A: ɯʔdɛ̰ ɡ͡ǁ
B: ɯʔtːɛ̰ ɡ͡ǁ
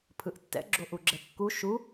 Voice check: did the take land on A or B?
B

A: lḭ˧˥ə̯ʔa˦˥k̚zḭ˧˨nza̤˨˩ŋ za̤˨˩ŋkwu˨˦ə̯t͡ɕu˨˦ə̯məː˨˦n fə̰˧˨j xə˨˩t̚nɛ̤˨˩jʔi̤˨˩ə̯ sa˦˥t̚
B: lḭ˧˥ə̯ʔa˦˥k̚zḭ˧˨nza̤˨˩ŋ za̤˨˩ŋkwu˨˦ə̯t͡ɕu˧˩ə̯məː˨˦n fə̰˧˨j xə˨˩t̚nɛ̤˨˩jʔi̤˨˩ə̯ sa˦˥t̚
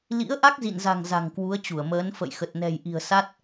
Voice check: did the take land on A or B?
B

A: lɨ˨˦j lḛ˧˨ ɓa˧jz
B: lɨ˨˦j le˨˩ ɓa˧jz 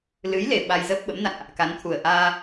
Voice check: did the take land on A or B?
B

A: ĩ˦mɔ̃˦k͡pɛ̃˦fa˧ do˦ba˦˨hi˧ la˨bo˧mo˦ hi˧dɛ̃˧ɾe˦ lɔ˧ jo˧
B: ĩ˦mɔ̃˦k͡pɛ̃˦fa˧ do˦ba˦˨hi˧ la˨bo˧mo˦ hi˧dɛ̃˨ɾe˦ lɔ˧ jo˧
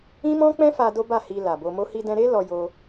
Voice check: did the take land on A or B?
A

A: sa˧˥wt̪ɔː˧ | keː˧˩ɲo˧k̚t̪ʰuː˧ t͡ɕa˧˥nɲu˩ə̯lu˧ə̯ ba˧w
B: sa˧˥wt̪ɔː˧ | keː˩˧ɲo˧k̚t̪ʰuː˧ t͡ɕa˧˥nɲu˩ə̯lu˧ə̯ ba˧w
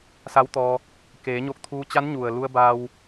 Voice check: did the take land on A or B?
B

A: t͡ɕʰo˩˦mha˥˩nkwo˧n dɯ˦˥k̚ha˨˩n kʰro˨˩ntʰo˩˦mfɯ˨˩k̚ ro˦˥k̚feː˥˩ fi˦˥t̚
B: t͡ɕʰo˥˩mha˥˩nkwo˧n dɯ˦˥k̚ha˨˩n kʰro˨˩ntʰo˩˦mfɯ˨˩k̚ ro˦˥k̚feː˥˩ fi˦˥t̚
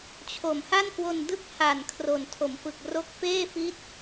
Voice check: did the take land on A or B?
A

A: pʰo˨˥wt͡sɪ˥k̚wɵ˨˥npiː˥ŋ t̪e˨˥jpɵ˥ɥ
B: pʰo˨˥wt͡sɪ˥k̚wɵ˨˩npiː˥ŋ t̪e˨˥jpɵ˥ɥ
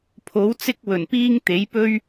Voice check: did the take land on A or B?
B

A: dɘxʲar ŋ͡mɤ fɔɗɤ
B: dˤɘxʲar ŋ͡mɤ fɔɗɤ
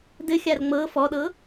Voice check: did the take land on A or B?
A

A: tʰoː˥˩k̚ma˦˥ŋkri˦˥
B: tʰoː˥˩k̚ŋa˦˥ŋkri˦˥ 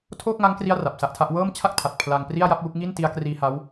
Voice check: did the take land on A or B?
B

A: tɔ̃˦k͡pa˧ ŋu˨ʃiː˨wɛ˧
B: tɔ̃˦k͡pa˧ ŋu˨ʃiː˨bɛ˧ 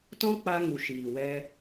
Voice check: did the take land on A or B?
A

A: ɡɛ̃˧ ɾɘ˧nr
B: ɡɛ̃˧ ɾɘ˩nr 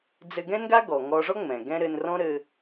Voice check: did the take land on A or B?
A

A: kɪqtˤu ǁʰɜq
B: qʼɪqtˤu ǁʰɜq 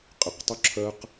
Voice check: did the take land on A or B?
B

